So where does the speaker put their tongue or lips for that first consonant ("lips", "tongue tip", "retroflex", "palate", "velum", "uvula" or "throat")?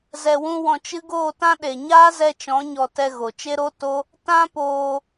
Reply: tongue tip